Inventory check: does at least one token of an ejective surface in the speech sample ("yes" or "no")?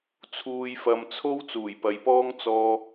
no